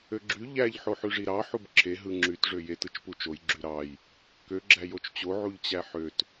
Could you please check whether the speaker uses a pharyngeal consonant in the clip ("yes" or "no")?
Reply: yes